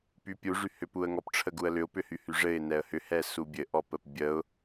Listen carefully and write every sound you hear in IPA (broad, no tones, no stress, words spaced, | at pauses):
pypʲu ʐyhʏpuə̯ŋɔp ʈ͡ʂʰəɡuə̯lʏʊ̯ pʏhyhyʐɘɪ̯ nɛə̯hʏ hɛsubʲɘ ʔɔpəpbʲəʊ̯